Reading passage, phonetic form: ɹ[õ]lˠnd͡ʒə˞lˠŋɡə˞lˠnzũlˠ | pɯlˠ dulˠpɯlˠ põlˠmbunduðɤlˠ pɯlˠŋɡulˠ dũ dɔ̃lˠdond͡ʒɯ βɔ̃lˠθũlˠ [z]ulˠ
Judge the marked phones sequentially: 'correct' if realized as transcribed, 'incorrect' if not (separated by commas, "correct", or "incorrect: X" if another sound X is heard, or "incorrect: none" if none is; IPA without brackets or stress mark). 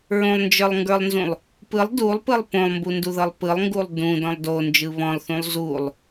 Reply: correct, correct